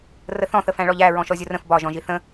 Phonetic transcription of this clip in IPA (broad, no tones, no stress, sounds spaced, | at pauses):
r ə θ ɔ̃ θ ə f æ̃ ɭ ɔ ʎ æ ɹ ɔ̃ ʃ ɔ zʲ ʊ r ə̃ f b ɒ ʒ ɔ̃ ʒ i θ ə̃